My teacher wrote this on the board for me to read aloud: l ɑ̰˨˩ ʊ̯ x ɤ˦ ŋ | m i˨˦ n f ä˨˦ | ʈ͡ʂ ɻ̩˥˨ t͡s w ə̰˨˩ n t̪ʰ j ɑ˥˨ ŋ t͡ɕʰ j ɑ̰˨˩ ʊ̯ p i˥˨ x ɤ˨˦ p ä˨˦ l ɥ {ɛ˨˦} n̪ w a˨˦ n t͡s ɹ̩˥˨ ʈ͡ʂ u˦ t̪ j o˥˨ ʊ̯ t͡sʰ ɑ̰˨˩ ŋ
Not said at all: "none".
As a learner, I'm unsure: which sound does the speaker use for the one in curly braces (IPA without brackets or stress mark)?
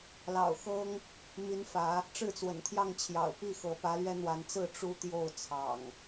ɛ˦